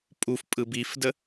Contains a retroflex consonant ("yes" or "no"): no